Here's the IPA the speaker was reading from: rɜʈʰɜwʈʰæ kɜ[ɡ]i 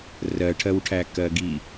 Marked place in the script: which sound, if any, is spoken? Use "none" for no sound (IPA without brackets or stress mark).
ɡ